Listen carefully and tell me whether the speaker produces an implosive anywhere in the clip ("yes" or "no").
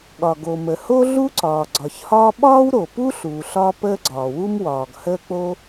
yes